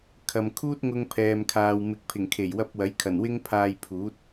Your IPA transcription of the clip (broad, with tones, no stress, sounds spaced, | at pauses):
kʰ ɐ˨ m kʰ uː˥ t̚ ŋ ʊ˧ ŋ pʰ ɛː˨ m kʰ aː˨ w m ɪ˨˥ k̚ pʰ ɪ˨˩ ŋ kʰ e˨˩ j w ɐ˧ p̚ w ɐ˨˥ j kʰ ɐ˨˩ n w ɪ˥ ŋ pʰ aː˧ j pʰ uː˨˥ t̚